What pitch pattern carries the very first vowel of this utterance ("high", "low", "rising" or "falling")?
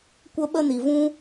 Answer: high